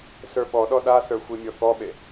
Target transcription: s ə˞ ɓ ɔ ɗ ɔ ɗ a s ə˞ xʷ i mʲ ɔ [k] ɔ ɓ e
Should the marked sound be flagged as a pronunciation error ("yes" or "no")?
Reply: no